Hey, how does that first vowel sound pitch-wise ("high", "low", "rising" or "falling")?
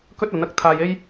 high